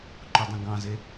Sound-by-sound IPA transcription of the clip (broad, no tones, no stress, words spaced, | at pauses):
ǃodˤẽɡɑ̃ze